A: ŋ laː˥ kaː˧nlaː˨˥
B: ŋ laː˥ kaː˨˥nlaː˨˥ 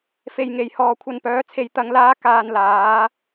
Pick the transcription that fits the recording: A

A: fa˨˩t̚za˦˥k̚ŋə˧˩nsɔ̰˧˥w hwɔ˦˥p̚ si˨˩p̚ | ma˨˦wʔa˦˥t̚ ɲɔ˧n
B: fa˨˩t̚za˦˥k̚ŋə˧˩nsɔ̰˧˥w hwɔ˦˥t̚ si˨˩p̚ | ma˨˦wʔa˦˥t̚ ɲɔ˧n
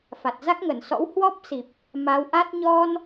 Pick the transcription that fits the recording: A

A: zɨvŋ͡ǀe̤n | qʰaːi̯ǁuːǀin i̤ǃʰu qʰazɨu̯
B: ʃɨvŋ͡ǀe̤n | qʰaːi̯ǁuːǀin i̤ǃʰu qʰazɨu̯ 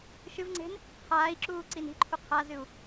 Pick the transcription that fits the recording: B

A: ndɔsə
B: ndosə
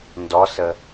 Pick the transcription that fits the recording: A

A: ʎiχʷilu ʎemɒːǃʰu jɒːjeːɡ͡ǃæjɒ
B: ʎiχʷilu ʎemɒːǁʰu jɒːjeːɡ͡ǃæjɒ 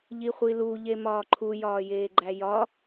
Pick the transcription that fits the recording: A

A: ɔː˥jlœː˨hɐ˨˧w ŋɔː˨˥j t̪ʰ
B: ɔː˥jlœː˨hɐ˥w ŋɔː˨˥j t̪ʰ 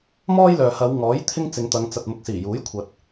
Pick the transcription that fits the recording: A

